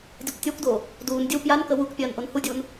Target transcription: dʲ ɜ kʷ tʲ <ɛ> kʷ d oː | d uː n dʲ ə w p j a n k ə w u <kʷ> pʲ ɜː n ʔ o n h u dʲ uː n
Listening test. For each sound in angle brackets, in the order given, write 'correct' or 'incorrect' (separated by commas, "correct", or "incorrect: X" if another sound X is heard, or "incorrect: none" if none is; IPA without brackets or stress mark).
incorrect: ɜ, incorrect: k